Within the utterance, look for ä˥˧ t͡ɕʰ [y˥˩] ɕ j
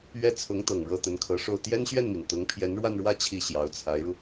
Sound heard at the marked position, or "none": i˥˩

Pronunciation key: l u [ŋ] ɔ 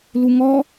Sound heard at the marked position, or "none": ŋ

